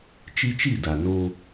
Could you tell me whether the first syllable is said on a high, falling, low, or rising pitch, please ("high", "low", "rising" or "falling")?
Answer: high